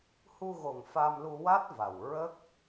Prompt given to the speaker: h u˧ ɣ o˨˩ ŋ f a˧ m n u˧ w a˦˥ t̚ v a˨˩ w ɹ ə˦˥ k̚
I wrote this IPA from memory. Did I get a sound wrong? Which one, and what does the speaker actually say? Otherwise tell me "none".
n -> l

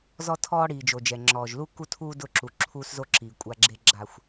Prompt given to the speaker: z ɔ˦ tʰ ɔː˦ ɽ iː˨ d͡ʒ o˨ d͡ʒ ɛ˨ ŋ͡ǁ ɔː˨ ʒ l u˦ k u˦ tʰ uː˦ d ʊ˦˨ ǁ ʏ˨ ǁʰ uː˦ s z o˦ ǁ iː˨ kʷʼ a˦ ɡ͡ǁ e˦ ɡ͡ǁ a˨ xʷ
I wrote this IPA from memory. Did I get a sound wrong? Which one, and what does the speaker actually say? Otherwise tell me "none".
ʏ˨ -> u˨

